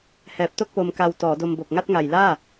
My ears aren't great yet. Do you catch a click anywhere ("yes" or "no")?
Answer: no